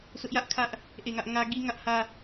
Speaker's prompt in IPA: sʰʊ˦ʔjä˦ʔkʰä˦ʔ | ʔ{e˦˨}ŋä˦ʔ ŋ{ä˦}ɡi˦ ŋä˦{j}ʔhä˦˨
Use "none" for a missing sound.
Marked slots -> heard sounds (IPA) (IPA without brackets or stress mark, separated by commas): e˦˨, ä˦, none